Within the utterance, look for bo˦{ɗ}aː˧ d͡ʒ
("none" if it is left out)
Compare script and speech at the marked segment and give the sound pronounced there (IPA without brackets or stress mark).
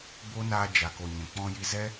n